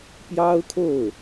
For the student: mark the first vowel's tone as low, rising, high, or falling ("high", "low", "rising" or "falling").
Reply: high